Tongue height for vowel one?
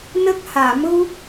mid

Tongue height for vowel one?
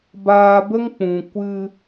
low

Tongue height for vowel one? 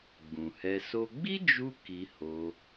high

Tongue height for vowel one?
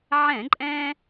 mid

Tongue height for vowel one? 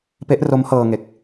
mid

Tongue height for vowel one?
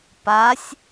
low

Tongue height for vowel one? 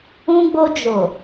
high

